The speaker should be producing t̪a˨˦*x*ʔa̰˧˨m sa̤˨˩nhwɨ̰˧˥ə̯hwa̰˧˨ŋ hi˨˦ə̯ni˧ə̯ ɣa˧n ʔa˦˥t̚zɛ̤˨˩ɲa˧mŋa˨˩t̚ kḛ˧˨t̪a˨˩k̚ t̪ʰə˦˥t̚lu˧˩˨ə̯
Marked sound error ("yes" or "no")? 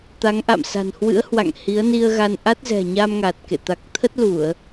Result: yes